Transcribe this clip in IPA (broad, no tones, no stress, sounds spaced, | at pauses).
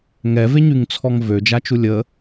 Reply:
ŋ ɛ v e ɲ y ŋ t͡sʰ ɔ ŋ v ø d͡ʒ a t͡ʃ u lʲ ə